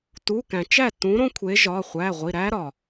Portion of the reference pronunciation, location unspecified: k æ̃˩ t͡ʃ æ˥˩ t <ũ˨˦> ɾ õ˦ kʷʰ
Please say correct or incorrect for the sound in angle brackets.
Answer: correct